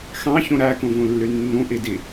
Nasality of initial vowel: nasal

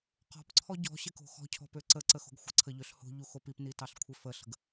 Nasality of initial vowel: oral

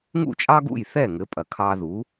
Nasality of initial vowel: oral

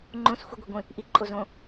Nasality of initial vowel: nasal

